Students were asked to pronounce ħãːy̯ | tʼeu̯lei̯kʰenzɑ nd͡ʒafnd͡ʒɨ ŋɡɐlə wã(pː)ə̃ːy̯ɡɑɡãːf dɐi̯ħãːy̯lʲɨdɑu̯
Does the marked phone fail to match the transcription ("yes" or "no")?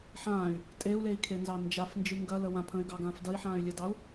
yes